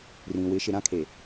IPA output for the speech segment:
rĩ˨wɪ˨˦ ʃɪ˨ ɾã˦kʰe˨

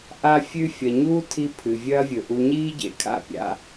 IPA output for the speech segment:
ʔa˦fʲʉ˦ fʲɐ˨ɲuː˦tʰi˧ pʰɨ˨vʲɐː˦vʲɵ˨ʔu˧ ɲiː˦ɟḛ˨kʰa̰˦˨pʲa̰˧

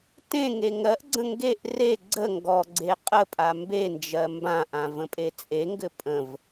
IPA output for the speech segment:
tẽ ŋeŋɜʔɡ͡ǀə̃ ŋɡeʔ re ɡ͡ǀə ŋɡɔɡ͡ǀe qʼəpʼa mbend͡ʒɜ mbãʔã və̃pʼet͡sʼeŋɡɘ pʼə̃v

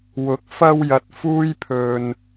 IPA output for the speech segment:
wʊ˨˥k̚fɐ˧wjɐ˨t̚ fuː˥jpʰɵ˧n

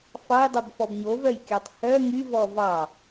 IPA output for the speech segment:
fɑjdˤobfɔb ɲovœjkʲɑtˤ hœ ŋyvɔ vɑ

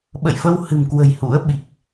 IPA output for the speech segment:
ɓə̰˧˨jfə˧whɨ̤˨˩mkwə̤˨˩j hṵ˧˥ə̯ ɓi˨˩k̚

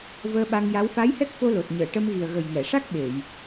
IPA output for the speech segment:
vəː˧ɓa˧ŋja˧˥w fa˧˥jhɛ˦˥k̚fo˧lo˨˩t̚ ɲəː˨˩˨ʈə˧mɣi˨˩ə̯ ɣə˨˩jŋɛ˨˩˨ʂa˦˥k̚ ɓe˨˩˨j

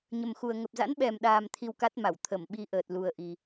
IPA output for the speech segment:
ɲə˨˩mxu˨˩ə̯ ŋə˨˩p̚za̰˧˥nɓɛ˨˩mɗaː˨˩m t̪ʰi˧wka˦˥t̚ma˧˩w t̪ʰə˧˩mɓi˧ ʔəː˨˩t̚lu˨˩ə̯ʔi˨˩

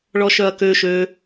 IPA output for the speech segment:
ɭɔʃœɐ̯kø ʃø

